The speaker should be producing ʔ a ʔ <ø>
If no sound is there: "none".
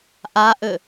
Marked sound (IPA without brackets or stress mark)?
ø